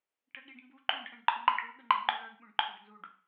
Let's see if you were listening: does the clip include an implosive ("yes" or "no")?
yes